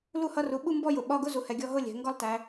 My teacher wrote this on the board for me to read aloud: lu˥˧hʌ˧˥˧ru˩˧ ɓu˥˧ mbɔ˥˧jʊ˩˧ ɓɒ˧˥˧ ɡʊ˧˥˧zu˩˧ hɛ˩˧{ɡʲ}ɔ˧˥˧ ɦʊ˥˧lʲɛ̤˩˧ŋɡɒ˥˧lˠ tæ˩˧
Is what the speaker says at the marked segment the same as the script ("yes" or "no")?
yes